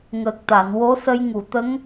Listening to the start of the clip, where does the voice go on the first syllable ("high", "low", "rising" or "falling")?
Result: low